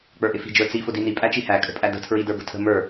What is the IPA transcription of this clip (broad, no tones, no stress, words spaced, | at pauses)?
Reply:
k͡pə˞ʔɪfi̤ d͡ʒə˞t͡si fʊdini pʼæt͡ʃihæ kʼə̤pʼædə̤ tʰɹidə˞bə̤tʰə̤ mə˞